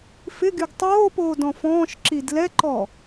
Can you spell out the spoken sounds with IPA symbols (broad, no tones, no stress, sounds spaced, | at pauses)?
f ɪ ɡ y ɡ tˤ oː p oː d ɔ̃ f ɔ̃ː ʃ ǁ i d l ɛ ǃ ɔ